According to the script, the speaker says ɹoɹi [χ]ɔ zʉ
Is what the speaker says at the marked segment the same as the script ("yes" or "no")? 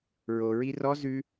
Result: no